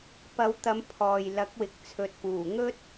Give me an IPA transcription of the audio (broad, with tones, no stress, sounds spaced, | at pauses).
p ɐ˨˧ w t̪ ɐ˨˧ m pʰ ɔː˨ j l ɐ˨˥ k̚ w ɪ˨ k̚ t͡sʰ ɵ˨ t̚ p uː˨˩ ŋ ɵ˥ t̚